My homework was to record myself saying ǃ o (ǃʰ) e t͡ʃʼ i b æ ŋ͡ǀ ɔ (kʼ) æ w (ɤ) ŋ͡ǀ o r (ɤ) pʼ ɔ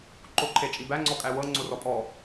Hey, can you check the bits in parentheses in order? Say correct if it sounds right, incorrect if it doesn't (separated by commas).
correct, correct, correct, incorrect